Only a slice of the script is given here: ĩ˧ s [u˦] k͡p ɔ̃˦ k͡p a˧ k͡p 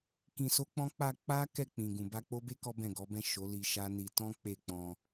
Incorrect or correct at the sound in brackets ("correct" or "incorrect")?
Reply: incorrect